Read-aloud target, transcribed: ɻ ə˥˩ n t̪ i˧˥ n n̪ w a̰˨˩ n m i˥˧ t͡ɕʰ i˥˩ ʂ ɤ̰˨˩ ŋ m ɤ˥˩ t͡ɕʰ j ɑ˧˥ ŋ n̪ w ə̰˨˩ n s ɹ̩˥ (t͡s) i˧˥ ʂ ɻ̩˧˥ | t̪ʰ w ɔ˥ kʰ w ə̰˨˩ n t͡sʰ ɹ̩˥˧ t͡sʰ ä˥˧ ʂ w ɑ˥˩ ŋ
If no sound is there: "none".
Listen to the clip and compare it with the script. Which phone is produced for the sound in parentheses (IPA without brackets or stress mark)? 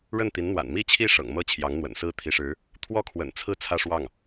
t̪ʰ